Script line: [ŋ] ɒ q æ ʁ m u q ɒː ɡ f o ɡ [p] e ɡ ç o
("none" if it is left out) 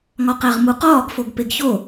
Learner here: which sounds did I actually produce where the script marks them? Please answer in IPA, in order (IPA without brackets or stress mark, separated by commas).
ŋ, p